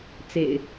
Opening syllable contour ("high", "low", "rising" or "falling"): low